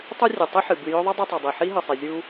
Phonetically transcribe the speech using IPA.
tˤ ɨ˦ rʲ ɨ˩ tˤ ɨ˥ ħ ɨ˩ b ɨ˨ j ɵ˦ ðˤ ɐ˥ dˤ ɐ˦ tˤ ɐ˩ dˤ i˩ ħ i˥ ɦ ɨ˩ sˤ i˩ zʲ u˦

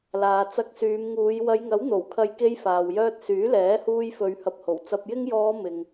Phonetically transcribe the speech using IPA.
l aː˨ t͡s ɐ˧ k̚ s yː˨˧ m ŋ uː˨˧ j w ɐ˨˧ j ŋ ɐ˨˥ w n̪ o˨˩ w kʰ ɐ˨˧ j k e˧ j f aː˨ w j œː˧ t̚ s yː˨˥ l ɛː˨˥ h uː˧ j f ɵ˨˧ ɥ h ɐ˨ p̚ h o˨˩ w t͡s ɐ˨ p̚ j ɪ˧ ŋ j ɔː˨˧ m ɪ˨ ŋ

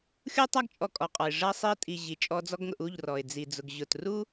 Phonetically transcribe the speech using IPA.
xʲ u˦ tˤ a˦ ɡ t͡ʃʼ ɔ˧ kʼ ɔ˨ qʼ ɔ˨ ɪ̯ ʐ ɐ˧ sˤ i˧ ə̯ tʼ i˨ ʑ i˨ t͡ʃʼ ɔ˧ d͡z ɔ˦ ɡ ŋ ʊ˧ ʔ u˦˨ ʎ r ɔ˨ ɪ̯ d͡z i˨ d͡z ʊ˨ ɡ ʑ ʊ˨ t r u˦

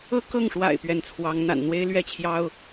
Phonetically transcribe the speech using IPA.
ɤ˥˧ k ɤ˥˩ ŋ ʂ w a̰˨˩ ɪ̯ p ɥ ɛ˧˥ n t͡sʰ w ɑ˧˥ ŋ n̪ a̰˨˩ n n̪ w e˥ ɪ̯ l ɥ ɛ˥˩ t͡ɕʰ j ɑ˥ ʊ̯

